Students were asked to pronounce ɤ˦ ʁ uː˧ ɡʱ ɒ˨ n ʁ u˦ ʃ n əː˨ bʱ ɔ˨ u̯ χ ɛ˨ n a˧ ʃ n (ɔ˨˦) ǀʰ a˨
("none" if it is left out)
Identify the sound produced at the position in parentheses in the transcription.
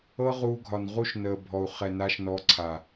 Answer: ɔ˨˦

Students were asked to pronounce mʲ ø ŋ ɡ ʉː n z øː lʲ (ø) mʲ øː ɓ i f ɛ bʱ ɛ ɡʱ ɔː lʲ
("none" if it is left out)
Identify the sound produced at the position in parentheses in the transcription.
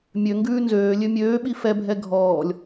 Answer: ø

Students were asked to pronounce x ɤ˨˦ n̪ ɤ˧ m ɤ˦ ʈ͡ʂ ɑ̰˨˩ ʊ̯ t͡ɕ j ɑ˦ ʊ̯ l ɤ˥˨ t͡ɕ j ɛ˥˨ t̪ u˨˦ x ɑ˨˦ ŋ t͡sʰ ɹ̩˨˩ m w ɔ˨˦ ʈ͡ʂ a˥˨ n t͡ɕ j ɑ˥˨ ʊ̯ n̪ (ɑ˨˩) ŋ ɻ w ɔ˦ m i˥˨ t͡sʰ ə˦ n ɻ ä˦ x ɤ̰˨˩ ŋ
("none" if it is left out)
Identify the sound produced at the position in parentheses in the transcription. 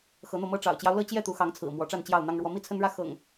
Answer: ɑ˦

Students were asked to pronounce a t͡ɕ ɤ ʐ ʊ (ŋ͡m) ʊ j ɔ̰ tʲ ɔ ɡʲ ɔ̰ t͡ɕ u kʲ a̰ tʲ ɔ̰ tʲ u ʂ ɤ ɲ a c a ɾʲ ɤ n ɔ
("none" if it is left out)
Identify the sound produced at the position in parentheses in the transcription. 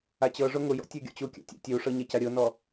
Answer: ŋ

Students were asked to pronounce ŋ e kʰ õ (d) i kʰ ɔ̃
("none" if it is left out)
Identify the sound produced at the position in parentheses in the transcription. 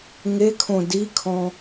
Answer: d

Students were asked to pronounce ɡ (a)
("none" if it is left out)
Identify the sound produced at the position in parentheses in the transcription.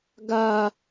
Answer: a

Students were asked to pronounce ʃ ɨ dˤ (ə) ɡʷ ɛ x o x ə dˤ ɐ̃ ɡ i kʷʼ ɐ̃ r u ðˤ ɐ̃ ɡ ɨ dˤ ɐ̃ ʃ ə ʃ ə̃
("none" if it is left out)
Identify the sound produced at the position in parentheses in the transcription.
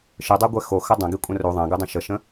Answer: a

